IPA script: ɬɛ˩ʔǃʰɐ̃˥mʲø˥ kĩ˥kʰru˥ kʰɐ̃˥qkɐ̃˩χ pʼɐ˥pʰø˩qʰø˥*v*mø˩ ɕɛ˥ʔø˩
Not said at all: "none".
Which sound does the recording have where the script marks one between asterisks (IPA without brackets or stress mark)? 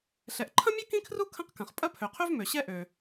v